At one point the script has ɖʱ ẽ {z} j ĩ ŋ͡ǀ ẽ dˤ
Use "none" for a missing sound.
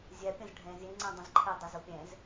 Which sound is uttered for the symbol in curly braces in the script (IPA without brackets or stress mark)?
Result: z